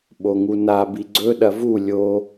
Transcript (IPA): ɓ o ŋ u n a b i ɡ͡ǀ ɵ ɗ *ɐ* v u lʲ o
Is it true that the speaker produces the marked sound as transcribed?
yes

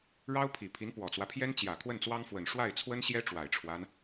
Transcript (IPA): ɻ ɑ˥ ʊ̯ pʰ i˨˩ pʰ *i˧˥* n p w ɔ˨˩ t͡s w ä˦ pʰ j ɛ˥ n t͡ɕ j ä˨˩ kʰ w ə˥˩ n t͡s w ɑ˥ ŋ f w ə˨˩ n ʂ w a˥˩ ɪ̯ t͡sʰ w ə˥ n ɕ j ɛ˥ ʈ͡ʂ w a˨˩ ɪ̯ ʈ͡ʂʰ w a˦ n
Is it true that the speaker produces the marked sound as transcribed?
yes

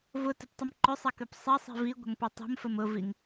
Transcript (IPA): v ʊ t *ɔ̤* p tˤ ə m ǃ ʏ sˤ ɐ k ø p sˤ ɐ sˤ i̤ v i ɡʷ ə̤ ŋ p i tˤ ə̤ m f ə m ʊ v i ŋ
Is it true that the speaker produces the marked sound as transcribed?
no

